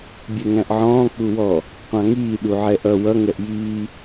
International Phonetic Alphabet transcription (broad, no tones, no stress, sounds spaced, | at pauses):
bʲ ɛ ŋ æ̃ ʔ ʕ ɔ̃ː k͡p u w ɔ | qʷ ɑ̃ ŋ iː ɗ u ʕ ɛ ʔ ʌ w ʌ ŋ ɛ ʔ j iː